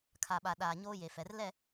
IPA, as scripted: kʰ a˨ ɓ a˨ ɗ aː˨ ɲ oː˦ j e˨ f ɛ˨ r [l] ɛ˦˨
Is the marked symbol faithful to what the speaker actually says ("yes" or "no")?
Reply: yes